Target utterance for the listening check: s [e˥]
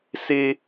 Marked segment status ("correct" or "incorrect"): correct